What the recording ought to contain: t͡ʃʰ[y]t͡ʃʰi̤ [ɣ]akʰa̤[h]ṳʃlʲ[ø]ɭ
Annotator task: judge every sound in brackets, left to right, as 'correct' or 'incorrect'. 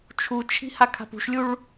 incorrect: u, incorrect: h, incorrect: p, incorrect: u

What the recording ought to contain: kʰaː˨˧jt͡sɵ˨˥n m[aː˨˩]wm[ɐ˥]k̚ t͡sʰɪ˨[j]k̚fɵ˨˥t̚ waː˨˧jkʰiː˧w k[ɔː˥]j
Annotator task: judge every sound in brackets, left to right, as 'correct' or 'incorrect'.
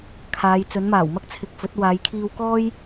correct, correct, incorrect: none, correct

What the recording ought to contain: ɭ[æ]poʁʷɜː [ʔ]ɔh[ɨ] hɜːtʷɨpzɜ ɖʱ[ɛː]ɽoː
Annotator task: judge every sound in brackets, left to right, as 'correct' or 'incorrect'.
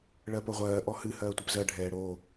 incorrect: ɜ, correct, correct, correct

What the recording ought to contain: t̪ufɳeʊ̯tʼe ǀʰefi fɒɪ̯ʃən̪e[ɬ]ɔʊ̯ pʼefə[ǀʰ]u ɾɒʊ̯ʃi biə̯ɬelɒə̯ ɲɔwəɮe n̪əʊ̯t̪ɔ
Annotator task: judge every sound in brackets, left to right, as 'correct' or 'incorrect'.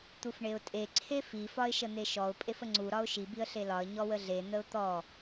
incorrect: ʃ, incorrect: ŋ͡ǀ

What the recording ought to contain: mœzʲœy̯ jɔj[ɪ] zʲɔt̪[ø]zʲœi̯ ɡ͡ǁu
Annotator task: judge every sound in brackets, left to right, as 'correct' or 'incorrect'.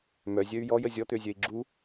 incorrect: ə, correct

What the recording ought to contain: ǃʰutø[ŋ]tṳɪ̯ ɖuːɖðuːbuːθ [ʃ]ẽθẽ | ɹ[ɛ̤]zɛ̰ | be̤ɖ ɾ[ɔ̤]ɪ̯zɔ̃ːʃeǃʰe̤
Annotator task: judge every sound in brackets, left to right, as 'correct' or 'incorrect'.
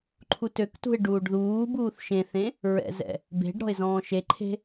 incorrect: k, correct, incorrect: ɛ̰, correct

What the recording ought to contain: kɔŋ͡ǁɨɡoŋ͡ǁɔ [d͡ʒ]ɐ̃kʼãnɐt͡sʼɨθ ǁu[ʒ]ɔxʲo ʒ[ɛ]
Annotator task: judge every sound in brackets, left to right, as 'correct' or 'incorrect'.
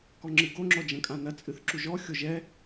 correct, correct, correct

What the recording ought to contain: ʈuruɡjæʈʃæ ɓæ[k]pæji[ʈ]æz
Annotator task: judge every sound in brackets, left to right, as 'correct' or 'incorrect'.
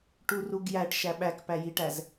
correct, correct

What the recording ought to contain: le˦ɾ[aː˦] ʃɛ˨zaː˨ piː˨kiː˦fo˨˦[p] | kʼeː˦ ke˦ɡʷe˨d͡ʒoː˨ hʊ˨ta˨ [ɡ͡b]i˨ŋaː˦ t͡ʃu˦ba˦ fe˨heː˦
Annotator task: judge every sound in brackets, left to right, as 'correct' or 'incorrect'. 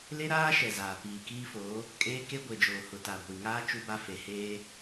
correct, incorrect: none, incorrect: ɡʷ

